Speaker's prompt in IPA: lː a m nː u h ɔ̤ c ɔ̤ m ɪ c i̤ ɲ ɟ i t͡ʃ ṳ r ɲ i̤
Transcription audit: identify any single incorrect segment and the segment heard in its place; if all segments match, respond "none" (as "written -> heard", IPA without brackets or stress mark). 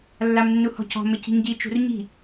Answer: none